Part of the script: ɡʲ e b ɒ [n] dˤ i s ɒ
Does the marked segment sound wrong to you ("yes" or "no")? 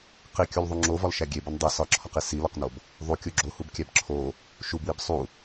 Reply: no